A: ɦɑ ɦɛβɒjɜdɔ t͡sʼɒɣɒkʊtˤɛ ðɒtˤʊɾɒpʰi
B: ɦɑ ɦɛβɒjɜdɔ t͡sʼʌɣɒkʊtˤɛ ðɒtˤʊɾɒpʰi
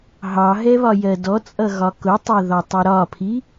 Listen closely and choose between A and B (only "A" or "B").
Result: B